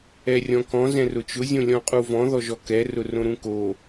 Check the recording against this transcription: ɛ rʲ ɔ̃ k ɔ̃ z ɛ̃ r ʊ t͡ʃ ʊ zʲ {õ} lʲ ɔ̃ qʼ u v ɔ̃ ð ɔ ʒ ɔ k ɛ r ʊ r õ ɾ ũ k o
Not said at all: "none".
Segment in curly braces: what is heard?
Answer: õ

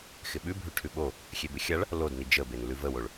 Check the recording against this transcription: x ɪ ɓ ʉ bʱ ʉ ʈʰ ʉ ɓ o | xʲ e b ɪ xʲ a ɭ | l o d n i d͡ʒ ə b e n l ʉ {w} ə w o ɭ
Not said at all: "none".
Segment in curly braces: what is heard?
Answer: v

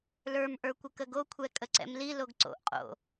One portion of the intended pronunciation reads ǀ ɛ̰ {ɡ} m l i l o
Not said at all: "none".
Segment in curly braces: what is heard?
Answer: none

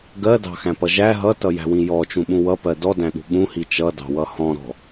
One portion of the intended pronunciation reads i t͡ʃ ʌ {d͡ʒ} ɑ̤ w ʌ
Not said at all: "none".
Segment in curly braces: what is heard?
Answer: d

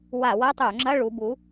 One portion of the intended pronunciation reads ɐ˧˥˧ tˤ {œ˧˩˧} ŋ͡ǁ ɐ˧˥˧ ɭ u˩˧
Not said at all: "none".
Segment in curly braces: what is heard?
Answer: œ˧˩˧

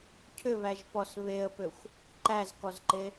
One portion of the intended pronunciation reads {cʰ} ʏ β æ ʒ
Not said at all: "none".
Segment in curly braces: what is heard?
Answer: cʰ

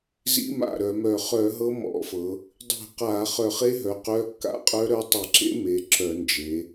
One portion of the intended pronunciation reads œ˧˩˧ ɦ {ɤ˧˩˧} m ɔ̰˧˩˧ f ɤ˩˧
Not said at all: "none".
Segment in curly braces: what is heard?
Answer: ɤ˦˥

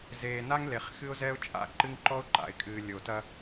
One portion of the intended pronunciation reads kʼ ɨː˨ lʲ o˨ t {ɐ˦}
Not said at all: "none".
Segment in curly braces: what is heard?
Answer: ɐ˦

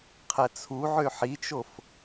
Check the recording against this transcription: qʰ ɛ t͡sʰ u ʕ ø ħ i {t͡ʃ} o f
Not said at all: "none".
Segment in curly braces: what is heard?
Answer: t͡ʃ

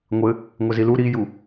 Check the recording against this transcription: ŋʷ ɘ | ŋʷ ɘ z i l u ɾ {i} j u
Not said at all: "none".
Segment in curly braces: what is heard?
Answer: i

